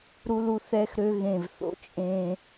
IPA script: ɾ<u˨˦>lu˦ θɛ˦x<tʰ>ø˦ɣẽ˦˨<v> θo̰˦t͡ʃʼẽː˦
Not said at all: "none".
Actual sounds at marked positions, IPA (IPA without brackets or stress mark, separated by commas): u˦, ɾ, v